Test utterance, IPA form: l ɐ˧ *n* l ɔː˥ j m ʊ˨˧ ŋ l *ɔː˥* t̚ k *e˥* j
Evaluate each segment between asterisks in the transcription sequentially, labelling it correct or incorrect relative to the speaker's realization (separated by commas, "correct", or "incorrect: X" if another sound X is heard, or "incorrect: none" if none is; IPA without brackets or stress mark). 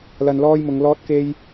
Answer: correct, correct, correct